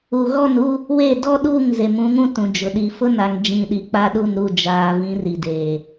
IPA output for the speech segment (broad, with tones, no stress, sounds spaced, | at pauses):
u˨ ɣ ɔ˦˨ n u˦ | w e˦˨ d ɔ˦ ɗ uː˦˨ ŋ z e˨ m ũ˨˦ ŋ ũ˦ t ũ˨ d͡ʒ ʊ˨ ɗ i˨˦ f ʊ˦ n a˨ ŋ d͡ʒ ĩ˨ ɗ i˨ k͡p a˦ ɗ u˦˨ n ɾ u˦˨ d͡ʒ aː˨ v ĩ˨˦ r i˨ d eː˨